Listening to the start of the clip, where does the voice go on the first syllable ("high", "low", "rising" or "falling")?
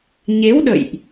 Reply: rising